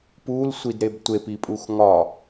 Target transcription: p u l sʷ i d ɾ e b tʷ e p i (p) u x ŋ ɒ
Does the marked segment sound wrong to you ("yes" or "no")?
yes